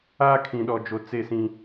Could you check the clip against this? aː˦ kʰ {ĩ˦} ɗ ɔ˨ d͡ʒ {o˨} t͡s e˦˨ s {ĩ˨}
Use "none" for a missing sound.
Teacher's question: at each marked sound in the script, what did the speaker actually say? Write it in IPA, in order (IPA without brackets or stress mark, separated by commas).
ĩ˨, o˨, ĩ˦